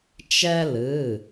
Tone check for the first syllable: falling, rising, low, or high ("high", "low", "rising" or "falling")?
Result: high